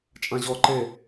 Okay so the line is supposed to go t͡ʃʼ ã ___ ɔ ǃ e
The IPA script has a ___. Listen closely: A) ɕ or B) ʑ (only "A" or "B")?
B